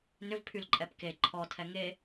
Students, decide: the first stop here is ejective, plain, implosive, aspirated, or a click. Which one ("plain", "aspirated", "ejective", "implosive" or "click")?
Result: aspirated